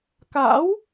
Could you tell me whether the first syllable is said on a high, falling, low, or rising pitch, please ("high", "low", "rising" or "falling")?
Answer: rising